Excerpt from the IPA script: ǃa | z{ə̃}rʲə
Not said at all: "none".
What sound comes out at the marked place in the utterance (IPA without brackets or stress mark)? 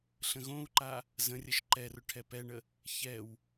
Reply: ə̃